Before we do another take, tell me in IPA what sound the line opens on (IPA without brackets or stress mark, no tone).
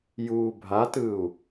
j